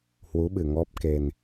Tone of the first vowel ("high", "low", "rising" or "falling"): rising